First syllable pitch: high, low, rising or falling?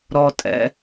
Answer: low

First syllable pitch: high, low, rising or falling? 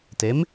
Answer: rising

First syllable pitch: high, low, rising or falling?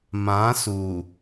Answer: rising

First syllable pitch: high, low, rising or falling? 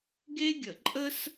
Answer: high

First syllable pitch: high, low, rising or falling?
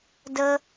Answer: high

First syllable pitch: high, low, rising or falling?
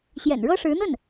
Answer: low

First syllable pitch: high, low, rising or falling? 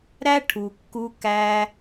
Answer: high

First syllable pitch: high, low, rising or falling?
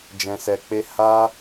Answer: low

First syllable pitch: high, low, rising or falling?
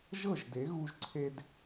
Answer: falling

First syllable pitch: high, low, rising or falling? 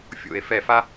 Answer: falling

